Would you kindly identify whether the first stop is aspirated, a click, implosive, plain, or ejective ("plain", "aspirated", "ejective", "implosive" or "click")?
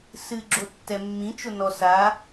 click